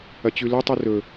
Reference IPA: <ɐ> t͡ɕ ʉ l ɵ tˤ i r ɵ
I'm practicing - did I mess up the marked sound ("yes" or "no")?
no